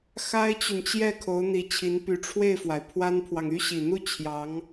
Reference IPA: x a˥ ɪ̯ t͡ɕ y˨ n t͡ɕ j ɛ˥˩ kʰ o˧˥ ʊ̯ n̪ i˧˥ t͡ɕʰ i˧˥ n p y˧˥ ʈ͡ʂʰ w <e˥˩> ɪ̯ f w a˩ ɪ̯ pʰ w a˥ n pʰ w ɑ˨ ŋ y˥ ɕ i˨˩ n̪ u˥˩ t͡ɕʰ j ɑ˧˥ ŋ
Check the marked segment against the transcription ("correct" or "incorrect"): correct